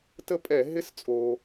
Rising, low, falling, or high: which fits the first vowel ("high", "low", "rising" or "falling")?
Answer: falling